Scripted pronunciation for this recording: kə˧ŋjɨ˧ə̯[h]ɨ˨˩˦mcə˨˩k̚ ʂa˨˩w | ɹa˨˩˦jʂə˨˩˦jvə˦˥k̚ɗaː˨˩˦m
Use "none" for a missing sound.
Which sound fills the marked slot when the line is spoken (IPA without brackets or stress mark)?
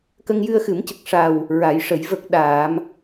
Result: x